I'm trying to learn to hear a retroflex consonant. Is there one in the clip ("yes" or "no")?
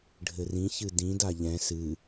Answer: yes